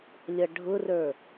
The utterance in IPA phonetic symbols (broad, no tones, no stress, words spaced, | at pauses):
lʲʌɖʱʊrə˞